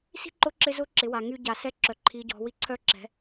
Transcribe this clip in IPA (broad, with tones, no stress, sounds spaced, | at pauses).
s i̤˥ ǃ ʊ˧˥ ǁ ɪ˧ z ʊ˧˥ ǁ ɪ˩˧ w a˩ ŋ y˧ ɟ a˩ s ɛ˧˥ ǁ œ˩˧ ǃʰ i˩˧ ɟ ɔ̤˩˧ w i˧ ǀʰ œ˧˥ ǁ ɛ̤˩˧